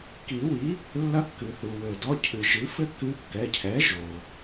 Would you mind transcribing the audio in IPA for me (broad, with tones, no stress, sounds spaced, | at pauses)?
k i˨˩˦ w i˩˥ | lː ɐ˧˥ kː ɨ˩ θ u˩ w ɘ˩ d ɔ˩˧˩ cʰ ɨ˩ ʒ ɨ˩˥ f ɘ˥ k ɨ˧˥ kː ɛ˩˧˩ cʰ ɛ˩˥ ʒ o˩